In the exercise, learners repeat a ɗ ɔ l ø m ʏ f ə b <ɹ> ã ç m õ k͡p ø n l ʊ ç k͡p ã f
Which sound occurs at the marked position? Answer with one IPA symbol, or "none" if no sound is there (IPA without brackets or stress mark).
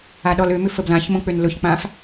l